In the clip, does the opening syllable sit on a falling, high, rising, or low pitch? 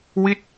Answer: falling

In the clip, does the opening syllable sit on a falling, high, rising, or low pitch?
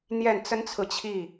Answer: falling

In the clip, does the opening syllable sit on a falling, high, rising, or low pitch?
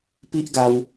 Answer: high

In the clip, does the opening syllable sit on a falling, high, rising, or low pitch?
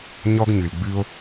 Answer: high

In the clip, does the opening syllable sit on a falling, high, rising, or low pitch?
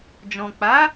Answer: low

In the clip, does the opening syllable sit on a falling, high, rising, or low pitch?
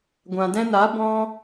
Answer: low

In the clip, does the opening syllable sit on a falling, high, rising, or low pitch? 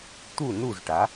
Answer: falling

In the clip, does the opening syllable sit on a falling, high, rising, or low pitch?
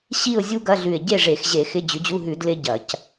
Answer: falling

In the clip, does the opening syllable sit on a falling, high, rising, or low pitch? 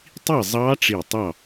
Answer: falling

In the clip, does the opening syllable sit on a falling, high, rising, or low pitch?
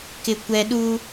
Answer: low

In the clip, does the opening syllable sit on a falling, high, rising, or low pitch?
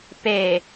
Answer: low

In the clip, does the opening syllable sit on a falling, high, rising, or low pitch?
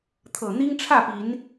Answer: low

